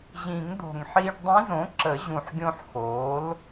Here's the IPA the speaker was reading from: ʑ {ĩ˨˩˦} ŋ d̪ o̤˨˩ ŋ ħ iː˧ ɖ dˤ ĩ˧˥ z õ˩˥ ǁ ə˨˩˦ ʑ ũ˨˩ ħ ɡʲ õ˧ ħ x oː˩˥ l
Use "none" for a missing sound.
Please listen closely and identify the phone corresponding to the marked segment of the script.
ĩ˨˩˦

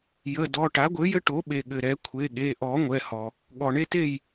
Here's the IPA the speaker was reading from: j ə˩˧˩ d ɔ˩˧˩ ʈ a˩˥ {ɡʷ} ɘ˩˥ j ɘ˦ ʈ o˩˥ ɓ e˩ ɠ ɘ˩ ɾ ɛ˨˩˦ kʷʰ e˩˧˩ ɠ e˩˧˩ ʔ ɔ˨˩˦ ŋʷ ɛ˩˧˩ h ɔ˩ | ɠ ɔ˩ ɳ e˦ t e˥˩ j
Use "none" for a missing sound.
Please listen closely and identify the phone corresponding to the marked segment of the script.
ɡʷ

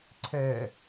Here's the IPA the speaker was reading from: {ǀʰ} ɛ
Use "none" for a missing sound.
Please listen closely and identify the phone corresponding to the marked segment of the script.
ǀʰ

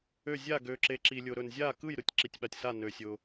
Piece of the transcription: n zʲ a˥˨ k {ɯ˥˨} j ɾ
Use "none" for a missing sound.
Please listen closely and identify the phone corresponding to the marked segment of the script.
ɯ˥˨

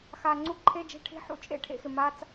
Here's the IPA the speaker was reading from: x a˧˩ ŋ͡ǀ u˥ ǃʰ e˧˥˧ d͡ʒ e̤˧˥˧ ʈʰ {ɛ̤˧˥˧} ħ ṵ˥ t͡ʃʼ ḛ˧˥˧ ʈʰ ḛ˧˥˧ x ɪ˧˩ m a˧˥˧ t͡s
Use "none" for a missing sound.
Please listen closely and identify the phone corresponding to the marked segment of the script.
e̤˧˥˧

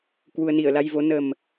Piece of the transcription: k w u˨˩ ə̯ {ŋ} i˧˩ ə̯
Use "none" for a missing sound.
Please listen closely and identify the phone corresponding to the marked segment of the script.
n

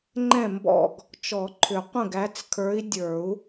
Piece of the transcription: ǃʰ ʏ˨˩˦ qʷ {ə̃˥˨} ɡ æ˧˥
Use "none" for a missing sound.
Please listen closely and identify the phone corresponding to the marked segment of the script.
ə̃˥˨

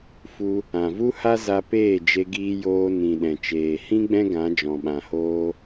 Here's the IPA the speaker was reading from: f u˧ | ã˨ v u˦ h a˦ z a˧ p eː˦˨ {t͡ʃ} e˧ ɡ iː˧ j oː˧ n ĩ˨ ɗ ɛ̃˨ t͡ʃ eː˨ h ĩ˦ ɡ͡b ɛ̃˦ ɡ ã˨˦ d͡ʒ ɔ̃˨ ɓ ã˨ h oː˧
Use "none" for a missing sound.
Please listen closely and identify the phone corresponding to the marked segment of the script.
d͡ʒ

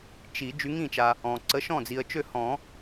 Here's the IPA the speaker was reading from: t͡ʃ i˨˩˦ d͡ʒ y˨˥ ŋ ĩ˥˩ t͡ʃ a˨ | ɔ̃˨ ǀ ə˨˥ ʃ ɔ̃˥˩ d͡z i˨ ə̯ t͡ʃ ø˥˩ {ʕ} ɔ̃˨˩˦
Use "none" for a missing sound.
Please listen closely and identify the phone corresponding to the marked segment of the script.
h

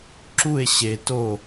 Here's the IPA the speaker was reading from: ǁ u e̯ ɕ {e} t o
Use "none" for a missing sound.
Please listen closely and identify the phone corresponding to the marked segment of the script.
e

